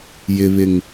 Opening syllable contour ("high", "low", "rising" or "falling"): low